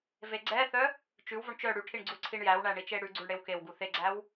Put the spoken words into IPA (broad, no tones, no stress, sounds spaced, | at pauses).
v e ɡ͡ǀ ɛ θ œ | t͡ʃ ʉ w v o ɳ t͡ʃ œ ɽ ʉ ʈʰ i ɳ ɡ͡ǀ u ǀʰ i ɳ j æ w ɳ æ ɳ i t͡ʃ e ɽ ʉ ɡ͡ǀ u ɳ ɽ e w k e w ɡ u θ e ɡ͡ǀ æ w